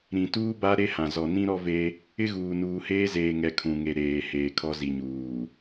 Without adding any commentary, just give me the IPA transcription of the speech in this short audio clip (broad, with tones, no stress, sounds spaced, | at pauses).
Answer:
ɾ ĩ˨ t uː˦ b a˦ ɾ e˦ h ã˨ z ɔ˨ n ĩ˦ ɾ ɔ˦ v e˦ | ɪ˦ ɣ uː˨ n uː˨ h eː˦ z eː˨ ŋ ɛ˨ kʰ ũ˨ ŋ e˨ ɾ eː˨ h eː˨ kʰ ɔ˦ z i˨ ɲ uː˨